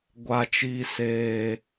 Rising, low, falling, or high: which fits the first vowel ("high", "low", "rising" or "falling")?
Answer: low